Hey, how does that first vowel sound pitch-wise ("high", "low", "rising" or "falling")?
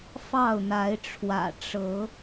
falling